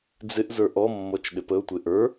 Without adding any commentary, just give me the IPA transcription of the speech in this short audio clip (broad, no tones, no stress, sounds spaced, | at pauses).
d͡z ɪ ʔ z ə˞ ʔ ɔ mː ɔ t͡ʃ ɗ ɪ p ə ʊ̯ tʷ e ʔ ə˞